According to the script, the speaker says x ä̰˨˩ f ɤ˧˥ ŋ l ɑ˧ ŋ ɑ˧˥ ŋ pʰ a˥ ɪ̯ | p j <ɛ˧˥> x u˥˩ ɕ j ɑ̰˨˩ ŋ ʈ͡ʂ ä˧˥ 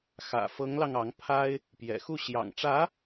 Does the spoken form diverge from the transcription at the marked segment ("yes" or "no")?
yes